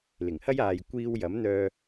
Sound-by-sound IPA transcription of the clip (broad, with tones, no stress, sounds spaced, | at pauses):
l ɪ˨˩ ŋ h ɐ˥ j aː˨ j kʷ iː˧ w j ɐ˨˥ m n̪ œː˧